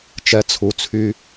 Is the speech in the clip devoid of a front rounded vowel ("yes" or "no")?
no